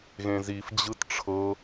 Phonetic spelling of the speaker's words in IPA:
ɣ ẽ z i f d͡ʑ ɯ t ʈ͡ʂʰ ɤ

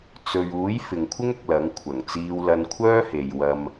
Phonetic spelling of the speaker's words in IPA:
t͡s ɵ˨ ɥ uː˨˥ j f ɪ˨ ŋ kʷʰ ɪ˥ ŋ ʊ˨ k̚ l ɐ˨˥ ŋ kʷʰ ɐ˨˩ ŋ t͡s iː˧ w l ɐ˧ n kʷʰ œː˥ h e˨ j w ɐ˧ m

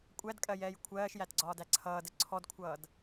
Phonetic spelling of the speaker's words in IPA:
kʷʼ æ d kʼ ɜ j ɛː j kʷʰ ɜː ʃ j æ t ɡ͡ǀ ɒː d æ ǀʰ ʌː d ə ǀʰ ɔ d kʷʰ ʌː d

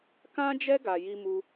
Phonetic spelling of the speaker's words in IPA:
k ã˦ d͡ʒ ɛ˦ ɡ a˧ j i˧ m u˧

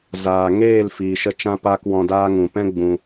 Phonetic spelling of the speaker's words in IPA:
z aː˨ ŋ eː˦˨ l f iː˨ ʃ ə˧ t͡ʃ ã˦ p aː˦ k w ɔ̃˧ d aː˦ ŋ ũ˨ p ɛ̃˦ ɡ͡b ũ˧

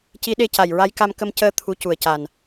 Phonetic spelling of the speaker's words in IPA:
c i˧˥ ɗ e˧ c a˨˩ j ɹ a˧˥ j k a˧ m k ə˧ m c əː˧˥ t̪ʰ u˧˥ c u˨˩ ə̯ c a˨˩ n

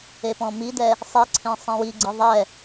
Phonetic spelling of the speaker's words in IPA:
e p ɔ̃ m i d ɛ | sˤ i ǀʰ ẽ sˤ ĩ w i ɡ͡ǀ i ðˤ ɛ

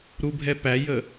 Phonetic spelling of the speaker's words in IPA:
ɾ u bʱ ɛ p æ j ə

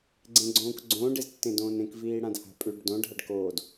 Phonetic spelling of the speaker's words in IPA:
ɡ͡ǀ ẽ ɡ͡ǀ õː k ɡ͡ǀ õː ɖ e z tː ẽ d õː n ẽ k v iː ɽ ã d h a̤ pʼ ʉ ɖ d õ ɖʱ a ɖ k oː d

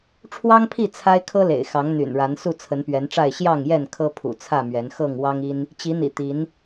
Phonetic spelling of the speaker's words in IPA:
ʈ͡ʂʰ w ɑ˦ ŋ pʰ i˥˨ t͡sʰ a˦ ɪ̯ kʰ ɤ˦ l ḛ˨˩ ɪ̯ x ɑ˨˦ ŋ n̪ y̰˨˩ n ɻ a˨˦ n s u˥˨ t͡sʰ ə˨˦ n p ɥ ɛ˨˦ n ʈ͡ʂ a˥˨ ɪ̯ ɕ j ɑ˥˨ ŋ j ɛ˥˨ n kʰ ɤ˦ pʰ ṵ˨˩ t͡sʰ ä˥˨ m ɥ ɛ˨˦ n x ɤ˥˨ ŋ w ɑ˦ ŋ i˦ n | t͡ɕ i˨˦ n̪ ḭ˨˩ t̪ i˨˦ n

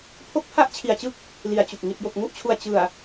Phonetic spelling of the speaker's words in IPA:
pʰ o˦˥ k̚ pʰ a˦˥ ʔ t͡ɕʰ i˨˩ a̯ t͡ɕ ɯ˦˥ k̚ | l i˨˩ a̯ t͡ɕ u˨˩ k̚ ŋ i˨˩ t̚ j o˨˩ k̚ ŋ u˥˩ ʔ t͡ɕʰ u˨˩ a̯ t͡ɕ ɯ˨˩ a̯

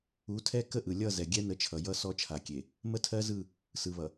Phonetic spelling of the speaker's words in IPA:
u˨˦ tʰ ɛ˦ k ə˦ ʔ ɯ˨ lʲ ʌ˦˨ z ɛ˨ ɡʲ ɛ˦ n ə˨˦ t͡ʃʰ ʌ˨ j ʌ˦ s ɔ˦ t͡ʃʰ a˨ kʲ e˨ | m ə˦ tʰ ɜ˦ z ɯ˦˨ | s ɯ˨ β ʌ˨

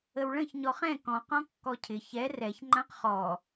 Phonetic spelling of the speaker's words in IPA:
ə w ɭ ə̃ ç ɲ ɔ χ ɛ̃ k ɔ̃ q ɔ̃ kː ɔ cʰ ɪ ç ɛ r ɛ ç ŋ͡ǃ ã q χ ɔ

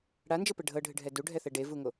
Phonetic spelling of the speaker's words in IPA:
ɽ a n d͡ʒ ɤ p ɛ ɖʱ ɤ ɖʱ ɨ ɖʱ ɛ d u ɖʱ ɛ θ ɛ ɖ e v u ŋ o

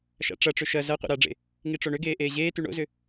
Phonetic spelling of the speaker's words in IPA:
ʃ a̰ ʈ͡ʂ ɐ ʈ͡ʂ ʏ ʃ ɐ z ɐ qʷ ḛ ɾ a ɖ͡ʐ ḛ | ŋ i ʈ͡ʂ o ɳ ʏ ɡ eː ʔ eː ʑ eː t y ɳ o̰ z ʏ

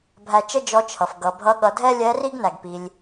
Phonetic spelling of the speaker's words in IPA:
bʱ æ˧ t͡ʃ ə˥ d͡ʒ ɔ˧˥ t͡ʃʰ ʌ˩ f ɡ ʌ˩˧ bʱ ʌ˧˥ ɠ ʌ˩˧ dʱ ɛ˥ lʲ ɛ˧˥ r i˥ ɡ n æ˩ ɡ p i˩ lʲ

